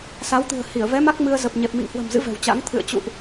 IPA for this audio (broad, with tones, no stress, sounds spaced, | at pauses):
s a˨˦ w t̪ ɨ̤˨˩ ə̯ h i˧˩ ə̯ v ɛ˨˦ m a˦˥ k̚ m ɨ˧ ə̯ z ə˨˩ p̚ ɲ ɛ˨˩ p̚ m ḭ˧˨ ŋ h w ə̤˨˩ m z ɨ̰˧˥ v ɛ̤˨˩ w t͡ɕ a̰˧˥ ŋ t̪ʰ ɨ̰˧˨ ə̯ t͡ɕ ṵ˧˨ ʔ